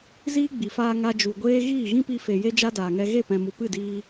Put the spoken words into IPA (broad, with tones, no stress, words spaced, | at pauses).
ziː˦ɡ͡bi˨faː˧ ŋa˧ d͡ʒu˨ɡʷeː˦ ɣiː˦˨ɣĩ˦pi˧fe˨ je˦d͡ʒa˦daː˨ŋɛ˧ ɣe˦˨pɛ̃˨mu˨ pɨ˦˨diː˧